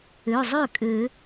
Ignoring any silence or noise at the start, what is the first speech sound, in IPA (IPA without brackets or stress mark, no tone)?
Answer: ø